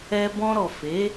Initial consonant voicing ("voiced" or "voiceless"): voiced